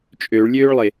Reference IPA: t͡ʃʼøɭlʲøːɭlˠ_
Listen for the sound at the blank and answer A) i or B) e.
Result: B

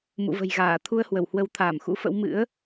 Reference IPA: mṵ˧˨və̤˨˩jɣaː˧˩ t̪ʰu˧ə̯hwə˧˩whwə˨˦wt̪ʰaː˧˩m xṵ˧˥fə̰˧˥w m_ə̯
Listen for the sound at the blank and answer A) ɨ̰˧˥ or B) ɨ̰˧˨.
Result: A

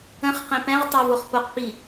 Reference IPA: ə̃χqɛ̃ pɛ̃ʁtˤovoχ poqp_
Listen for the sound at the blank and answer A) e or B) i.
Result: B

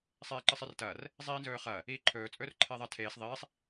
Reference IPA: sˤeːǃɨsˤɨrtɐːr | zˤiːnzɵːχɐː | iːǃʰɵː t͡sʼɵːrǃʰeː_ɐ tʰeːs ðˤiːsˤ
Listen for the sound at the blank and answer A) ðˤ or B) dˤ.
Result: A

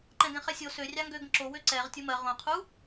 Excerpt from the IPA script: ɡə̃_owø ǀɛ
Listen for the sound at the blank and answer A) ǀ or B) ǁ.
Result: B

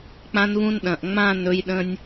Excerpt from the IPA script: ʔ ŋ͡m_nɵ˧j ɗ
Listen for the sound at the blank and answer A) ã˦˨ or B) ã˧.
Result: A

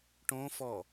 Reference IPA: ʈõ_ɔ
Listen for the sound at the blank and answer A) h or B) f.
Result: B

